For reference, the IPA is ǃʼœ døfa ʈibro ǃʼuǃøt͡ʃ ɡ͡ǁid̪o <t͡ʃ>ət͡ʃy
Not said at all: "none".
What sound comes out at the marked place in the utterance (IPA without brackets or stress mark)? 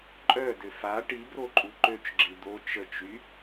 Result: t͡ʃ